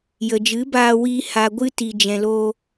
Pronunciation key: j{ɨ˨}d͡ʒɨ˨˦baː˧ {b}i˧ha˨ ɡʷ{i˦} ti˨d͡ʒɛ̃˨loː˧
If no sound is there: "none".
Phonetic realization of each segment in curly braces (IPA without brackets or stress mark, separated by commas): ə˨, w, ɨ˦